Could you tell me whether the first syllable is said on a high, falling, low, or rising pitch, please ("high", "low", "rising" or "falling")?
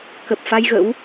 low